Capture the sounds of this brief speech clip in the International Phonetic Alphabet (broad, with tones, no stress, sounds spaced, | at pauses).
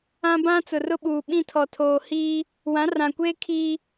ã˦ b ã˦ t͡s ʊ˨ r ʊ˦ ɓ uː˨ ɓ ĩ˦˨ tʰ ɔ˨ tʰ oː˨ h iː˦ | w ã˨˦ r ã˨ kʷ eː˦ kʰ iː˦